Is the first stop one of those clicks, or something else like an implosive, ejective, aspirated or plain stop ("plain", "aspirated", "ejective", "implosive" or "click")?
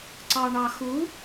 click